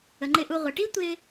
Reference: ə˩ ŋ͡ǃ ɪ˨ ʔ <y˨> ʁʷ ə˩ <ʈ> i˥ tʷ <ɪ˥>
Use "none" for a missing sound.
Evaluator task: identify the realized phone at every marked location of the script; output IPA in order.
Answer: u˨, ʈ, ɪ˦

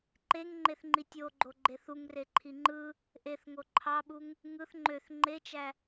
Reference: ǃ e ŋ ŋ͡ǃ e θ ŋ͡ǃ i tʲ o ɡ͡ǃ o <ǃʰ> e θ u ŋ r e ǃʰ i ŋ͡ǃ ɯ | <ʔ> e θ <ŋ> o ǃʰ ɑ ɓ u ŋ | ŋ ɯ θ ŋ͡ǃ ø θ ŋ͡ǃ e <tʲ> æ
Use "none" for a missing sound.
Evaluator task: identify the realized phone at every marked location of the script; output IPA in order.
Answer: ɡ͡ǃ, ʔ, ŋ, t͡ʃ

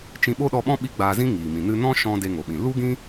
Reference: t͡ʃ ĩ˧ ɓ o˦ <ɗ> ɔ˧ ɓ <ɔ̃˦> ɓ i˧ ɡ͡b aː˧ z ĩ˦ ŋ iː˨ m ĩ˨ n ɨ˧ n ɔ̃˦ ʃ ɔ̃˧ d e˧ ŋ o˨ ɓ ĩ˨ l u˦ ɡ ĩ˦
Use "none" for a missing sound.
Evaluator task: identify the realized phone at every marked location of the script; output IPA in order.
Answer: ɗ, ɔ̃˦

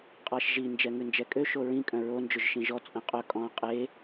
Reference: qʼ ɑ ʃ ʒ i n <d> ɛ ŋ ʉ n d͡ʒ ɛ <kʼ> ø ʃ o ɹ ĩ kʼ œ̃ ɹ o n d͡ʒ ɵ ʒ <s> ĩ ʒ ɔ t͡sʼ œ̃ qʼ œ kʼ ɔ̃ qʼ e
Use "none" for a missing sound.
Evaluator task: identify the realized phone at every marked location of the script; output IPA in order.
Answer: d͡ʒ, kʼ, ʃ

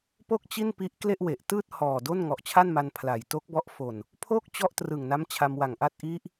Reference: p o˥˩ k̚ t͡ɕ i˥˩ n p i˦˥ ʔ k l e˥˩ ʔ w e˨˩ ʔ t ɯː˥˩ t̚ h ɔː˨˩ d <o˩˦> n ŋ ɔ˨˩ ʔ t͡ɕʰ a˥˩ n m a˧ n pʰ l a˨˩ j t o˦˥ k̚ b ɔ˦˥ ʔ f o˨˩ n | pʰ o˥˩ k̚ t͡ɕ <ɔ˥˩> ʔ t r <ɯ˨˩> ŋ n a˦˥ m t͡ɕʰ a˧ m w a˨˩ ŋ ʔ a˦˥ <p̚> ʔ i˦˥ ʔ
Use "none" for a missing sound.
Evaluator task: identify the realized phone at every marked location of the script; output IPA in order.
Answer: o˥˩, ɔ˥˩, ɯ˨˩, t̚

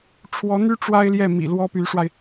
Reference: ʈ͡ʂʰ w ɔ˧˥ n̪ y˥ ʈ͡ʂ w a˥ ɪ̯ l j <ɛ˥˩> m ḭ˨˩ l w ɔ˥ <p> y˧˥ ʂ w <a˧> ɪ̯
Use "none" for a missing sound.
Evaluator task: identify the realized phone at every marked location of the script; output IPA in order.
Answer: ɛ˥˩, p, a˧

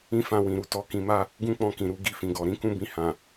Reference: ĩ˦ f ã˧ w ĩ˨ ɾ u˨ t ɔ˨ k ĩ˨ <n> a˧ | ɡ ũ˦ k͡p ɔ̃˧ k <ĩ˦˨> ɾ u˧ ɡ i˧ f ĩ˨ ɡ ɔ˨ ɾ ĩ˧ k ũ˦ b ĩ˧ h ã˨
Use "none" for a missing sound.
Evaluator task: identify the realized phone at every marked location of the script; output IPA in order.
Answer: m, ĩ˨

